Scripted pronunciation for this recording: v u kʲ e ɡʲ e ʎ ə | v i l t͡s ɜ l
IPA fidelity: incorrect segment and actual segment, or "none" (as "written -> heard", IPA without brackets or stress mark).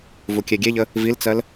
none